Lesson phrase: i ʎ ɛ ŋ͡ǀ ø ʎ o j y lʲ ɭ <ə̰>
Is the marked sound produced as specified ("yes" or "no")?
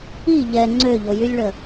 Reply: no